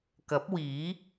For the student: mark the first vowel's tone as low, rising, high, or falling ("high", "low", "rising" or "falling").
rising